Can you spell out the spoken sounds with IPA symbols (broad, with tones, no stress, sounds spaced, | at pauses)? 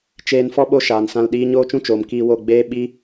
t͡ʃ eː˧ n f ɔ˦ ɓ o˦ ʃ aː˨ n s ã˧ l ɗ iː˦ ɲ oː˦ t͡ʃ ũ˦ t͡ʃ oː˨ m k iː˧ w o˦˨ ɡ͡b eː˦ ɓ i˦